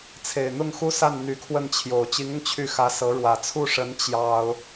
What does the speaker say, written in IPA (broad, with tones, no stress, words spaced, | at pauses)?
t͡sʰe˨˩ɪ̯n̪ʊ˥˩ŋxu˥sa˥˩n n̪y˧˥kʰwə˥˩nt͡ɕʰjo˨˩ʊ̯ t͡ɕi˧˥ŋʊ˧ŋ t͡ɕʰy˥˩xä˧˥sɤ˧˥ɻwä˨˩ t͡sʰu˥˩ʂə˧˥n t͡ɕjɑ˥ʊ̯